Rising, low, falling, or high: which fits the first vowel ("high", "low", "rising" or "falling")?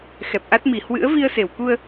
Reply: low